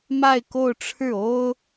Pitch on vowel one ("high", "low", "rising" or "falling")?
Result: falling